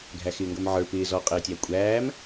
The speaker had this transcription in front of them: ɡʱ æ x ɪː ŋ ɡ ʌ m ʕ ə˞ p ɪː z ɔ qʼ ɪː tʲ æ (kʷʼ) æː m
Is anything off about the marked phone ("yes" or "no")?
no